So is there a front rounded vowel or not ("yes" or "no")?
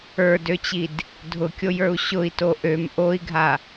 yes